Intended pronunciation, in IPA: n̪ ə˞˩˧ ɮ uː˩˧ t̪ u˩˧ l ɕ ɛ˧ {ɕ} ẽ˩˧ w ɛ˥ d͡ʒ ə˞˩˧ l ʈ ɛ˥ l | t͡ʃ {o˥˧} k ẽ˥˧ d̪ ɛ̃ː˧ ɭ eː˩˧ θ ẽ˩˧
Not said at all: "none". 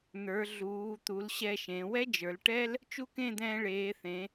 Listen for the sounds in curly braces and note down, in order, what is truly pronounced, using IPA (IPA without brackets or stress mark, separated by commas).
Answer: ʃ, u˥˧